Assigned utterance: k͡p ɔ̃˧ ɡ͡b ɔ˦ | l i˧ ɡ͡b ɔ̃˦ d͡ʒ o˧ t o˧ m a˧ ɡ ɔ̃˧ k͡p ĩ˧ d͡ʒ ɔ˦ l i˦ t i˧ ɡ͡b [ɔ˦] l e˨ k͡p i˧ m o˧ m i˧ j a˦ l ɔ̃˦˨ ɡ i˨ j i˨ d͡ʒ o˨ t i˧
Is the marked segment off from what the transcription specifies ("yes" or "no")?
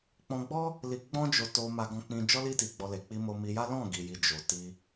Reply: yes